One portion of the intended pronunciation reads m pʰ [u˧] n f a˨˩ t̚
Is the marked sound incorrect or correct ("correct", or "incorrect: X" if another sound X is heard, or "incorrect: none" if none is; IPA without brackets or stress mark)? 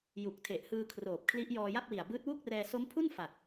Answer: incorrect: u˥˩